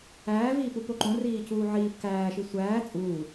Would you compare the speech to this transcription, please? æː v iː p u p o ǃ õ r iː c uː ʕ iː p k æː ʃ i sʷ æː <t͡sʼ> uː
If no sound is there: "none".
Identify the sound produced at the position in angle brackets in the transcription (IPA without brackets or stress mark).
t͡sʼ